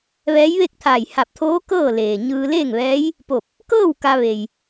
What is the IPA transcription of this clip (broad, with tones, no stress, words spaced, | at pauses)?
ʋɛː˧˥jʋe˥˨k̚t̪ʰaː˧˩j ha˧˩p̚t̪ʰoː˧˥ kɤː˥˨leː˩ɲɯː˧ le˥˨ŋʋɛː˧˥j | po˧˩p̚ | kɤː˥˨w ka˧ʋe˩j